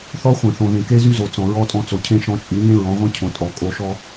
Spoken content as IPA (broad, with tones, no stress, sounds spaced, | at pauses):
θ ɔ˦ χʷ ẽ˨ θ õ˨ ð ẽ˨ k e˦ z y˦ z o˨ t͡s ɔ̃˨ ɹ ɔ˧ tʼ ɔ̃˧ t͡s o˨ cʰ ẽ˦ ʃ ɔ̃˧ t͡ʃʼ y˨˦ ɲ ẽ˦ ɹ ɔ̃˨˦ ʁʷ ẽ˦ cʰ õ˨ tʼ ɔ˨ kʼ o˧ ʃ ɔ˦